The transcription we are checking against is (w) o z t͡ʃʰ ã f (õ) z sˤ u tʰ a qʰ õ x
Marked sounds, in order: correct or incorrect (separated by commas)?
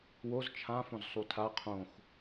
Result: correct, correct